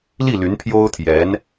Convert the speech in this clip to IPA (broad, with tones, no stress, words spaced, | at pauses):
li˥˩ ly˧˥npʰjo˥ʊ̯t̪ʰjɛ˧˥n